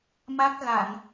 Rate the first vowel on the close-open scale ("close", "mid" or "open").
open